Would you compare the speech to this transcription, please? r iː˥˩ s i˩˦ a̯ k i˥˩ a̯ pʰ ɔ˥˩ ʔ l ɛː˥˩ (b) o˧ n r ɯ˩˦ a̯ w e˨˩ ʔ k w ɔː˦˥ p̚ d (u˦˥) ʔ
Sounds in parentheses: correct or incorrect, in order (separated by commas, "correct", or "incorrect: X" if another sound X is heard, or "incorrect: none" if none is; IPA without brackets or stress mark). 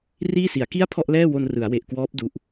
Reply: incorrect: w, correct